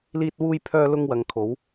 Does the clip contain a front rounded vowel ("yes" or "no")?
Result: yes